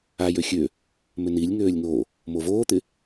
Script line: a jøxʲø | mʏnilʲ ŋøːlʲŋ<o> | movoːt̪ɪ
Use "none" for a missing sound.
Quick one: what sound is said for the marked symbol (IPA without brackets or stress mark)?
o